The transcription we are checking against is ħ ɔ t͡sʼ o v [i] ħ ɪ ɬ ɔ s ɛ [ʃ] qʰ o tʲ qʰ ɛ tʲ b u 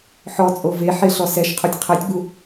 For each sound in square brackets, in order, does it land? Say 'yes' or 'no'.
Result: no, yes

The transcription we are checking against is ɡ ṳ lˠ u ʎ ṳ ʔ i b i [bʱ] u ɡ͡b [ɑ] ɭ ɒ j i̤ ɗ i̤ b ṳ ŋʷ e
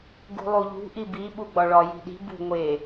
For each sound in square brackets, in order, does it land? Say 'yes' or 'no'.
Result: no, no

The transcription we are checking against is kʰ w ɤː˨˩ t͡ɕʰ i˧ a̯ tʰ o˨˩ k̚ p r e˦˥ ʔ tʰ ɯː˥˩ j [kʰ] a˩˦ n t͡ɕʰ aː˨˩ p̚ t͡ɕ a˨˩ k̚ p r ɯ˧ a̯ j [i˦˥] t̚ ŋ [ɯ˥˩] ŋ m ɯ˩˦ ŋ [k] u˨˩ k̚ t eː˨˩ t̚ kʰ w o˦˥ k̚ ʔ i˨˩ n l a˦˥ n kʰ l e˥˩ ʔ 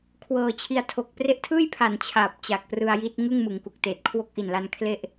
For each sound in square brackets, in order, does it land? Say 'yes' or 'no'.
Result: no, yes, yes, yes

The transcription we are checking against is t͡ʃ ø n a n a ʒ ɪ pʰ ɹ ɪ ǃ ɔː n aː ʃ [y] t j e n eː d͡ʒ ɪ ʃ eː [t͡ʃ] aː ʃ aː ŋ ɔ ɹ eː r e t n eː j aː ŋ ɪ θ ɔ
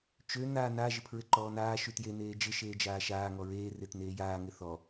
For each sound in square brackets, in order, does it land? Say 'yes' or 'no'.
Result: yes, no

